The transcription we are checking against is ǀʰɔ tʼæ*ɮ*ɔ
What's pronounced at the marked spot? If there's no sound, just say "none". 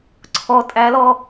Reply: l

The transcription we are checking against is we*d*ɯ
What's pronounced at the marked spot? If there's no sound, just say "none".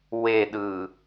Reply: ɗ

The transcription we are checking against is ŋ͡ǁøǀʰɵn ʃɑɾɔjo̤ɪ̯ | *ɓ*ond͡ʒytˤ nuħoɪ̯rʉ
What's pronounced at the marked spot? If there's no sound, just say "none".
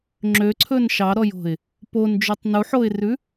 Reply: p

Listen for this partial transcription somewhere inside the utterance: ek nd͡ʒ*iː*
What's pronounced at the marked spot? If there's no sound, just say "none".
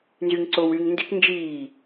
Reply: iː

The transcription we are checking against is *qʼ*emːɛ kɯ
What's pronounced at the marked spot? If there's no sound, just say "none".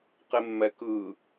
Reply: q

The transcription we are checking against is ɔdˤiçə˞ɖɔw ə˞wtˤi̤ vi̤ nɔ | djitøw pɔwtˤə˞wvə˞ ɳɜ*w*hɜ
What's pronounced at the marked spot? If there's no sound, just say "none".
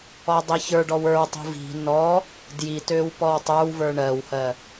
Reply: w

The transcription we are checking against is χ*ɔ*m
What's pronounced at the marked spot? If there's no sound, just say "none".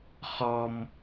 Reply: ɔ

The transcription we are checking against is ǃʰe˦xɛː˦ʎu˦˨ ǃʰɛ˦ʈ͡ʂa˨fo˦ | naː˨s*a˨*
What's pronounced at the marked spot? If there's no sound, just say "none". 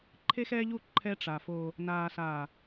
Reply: aː˨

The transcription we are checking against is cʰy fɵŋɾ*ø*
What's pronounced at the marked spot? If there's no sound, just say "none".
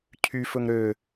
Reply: ø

